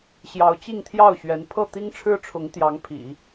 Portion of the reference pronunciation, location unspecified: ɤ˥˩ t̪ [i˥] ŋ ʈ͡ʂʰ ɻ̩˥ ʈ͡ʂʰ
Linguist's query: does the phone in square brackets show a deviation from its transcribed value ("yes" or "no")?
no